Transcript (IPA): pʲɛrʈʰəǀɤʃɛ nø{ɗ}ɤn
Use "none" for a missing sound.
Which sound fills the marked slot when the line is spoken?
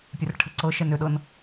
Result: ɗ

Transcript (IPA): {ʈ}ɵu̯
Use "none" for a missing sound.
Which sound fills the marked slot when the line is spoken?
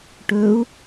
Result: ʈ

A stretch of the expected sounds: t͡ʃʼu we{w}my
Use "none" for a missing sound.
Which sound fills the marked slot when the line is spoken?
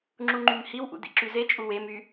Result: none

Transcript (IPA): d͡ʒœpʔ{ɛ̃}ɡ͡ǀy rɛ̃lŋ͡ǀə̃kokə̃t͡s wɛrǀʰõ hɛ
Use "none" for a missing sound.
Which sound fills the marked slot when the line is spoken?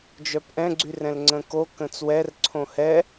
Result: ɛ̃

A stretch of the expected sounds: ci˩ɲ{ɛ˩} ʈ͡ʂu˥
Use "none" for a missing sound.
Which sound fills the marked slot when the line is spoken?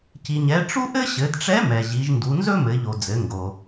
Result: ɛ˩˧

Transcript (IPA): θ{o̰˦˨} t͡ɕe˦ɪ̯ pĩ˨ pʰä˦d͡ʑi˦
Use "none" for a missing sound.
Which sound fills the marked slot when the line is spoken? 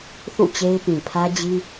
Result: ṵ˦˨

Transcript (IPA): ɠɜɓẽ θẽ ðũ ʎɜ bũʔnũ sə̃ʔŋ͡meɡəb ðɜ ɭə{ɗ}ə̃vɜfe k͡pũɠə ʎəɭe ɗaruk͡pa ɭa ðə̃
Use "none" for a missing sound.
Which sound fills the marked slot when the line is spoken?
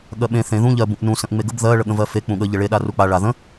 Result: ɠ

